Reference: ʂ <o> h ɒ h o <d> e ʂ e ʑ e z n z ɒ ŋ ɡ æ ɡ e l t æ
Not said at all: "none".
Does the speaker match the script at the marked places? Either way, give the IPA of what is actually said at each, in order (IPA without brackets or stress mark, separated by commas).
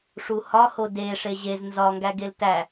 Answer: u, d